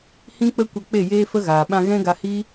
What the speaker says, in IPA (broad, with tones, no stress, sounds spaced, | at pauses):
h ĩ˦ k͡p ə˦ kʷ ə˧ k͡p e˦˨ j eː˦ f ə˦ ɣ aː˨ ɓ ã˧ ɣ ɛ̃˦ ɡ a˧ h i˦